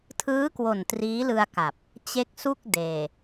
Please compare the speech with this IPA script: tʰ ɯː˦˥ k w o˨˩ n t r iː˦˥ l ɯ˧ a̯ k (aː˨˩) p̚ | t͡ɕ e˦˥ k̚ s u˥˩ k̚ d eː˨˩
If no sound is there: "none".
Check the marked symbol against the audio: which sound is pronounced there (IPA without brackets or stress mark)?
a˨˩